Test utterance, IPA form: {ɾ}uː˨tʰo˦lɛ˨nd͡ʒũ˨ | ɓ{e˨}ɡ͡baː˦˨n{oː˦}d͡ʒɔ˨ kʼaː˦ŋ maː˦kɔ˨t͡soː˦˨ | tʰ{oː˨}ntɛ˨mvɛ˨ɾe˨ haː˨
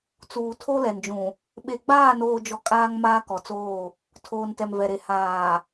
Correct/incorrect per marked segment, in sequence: incorrect: t͡s, correct, incorrect: oː˨, correct

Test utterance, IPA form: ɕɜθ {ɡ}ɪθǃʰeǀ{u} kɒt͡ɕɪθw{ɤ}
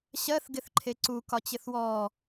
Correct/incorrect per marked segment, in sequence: correct, correct, incorrect: ɔ

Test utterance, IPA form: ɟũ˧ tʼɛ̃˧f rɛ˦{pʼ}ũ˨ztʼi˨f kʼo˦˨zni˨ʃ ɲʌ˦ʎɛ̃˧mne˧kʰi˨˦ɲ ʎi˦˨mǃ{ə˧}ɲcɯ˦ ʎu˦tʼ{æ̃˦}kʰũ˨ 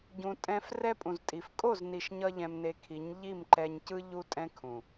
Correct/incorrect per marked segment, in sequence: correct, incorrect: ɛ˧, incorrect: ɛ̃˦

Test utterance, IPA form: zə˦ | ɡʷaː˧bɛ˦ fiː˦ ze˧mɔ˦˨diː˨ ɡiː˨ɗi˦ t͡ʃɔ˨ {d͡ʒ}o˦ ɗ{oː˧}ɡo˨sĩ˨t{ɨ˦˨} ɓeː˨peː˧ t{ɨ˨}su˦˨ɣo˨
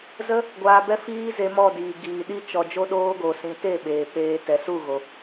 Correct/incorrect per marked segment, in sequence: correct, correct, incorrect: e˦˨, incorrect: ɛ˨

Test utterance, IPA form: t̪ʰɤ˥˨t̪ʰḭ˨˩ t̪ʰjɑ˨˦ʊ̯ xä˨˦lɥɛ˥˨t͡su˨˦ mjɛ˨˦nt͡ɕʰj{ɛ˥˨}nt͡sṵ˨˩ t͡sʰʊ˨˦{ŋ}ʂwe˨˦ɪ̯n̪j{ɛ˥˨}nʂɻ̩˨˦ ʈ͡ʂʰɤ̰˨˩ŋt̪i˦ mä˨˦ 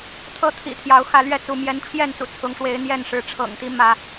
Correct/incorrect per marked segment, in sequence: correct, correct, correct

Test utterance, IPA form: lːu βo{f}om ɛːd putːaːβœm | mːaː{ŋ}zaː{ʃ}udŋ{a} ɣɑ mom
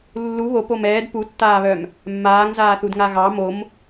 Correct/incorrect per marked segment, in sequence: incorrect: p, correct, incorrect: θ, correct

